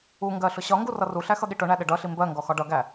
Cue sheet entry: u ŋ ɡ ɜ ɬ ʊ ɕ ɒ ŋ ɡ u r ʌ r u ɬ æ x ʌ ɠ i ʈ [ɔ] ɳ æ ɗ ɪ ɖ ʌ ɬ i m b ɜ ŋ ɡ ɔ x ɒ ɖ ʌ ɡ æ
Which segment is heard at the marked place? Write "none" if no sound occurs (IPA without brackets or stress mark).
ʊ